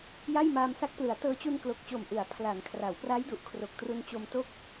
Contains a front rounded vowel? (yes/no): no